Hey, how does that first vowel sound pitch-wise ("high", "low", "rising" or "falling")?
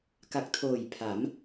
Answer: low